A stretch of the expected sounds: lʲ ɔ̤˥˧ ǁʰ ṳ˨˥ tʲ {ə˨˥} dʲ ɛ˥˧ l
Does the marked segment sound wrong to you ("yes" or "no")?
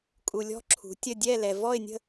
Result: yes